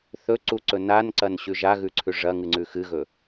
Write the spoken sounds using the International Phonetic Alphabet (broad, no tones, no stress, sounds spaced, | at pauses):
θ ɵ ǀ u ǀ ɵ n a n ǀ ɐ n ɕ ʉ ʒ a ɣ ʉ ǀʰ ʉ ʐ ɐ ŋ ɨ ŋ͡ǀ ʉ x ɨ ɣ ɵ